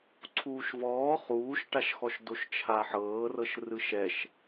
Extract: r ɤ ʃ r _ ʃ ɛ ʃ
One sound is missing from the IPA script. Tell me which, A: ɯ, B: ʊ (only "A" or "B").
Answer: A